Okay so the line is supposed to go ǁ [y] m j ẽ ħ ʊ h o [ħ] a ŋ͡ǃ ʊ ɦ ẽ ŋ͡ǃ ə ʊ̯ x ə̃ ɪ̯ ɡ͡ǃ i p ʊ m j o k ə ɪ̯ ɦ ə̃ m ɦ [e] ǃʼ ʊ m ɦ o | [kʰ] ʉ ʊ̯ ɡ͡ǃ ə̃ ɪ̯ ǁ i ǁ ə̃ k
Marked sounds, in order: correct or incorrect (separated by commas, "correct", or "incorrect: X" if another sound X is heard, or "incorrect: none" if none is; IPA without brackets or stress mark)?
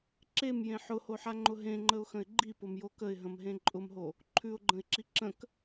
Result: incorrect: e, correct, incorrect: ẽ, incorrect: ǃʰ